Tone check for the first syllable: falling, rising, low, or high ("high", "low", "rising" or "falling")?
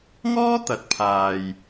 high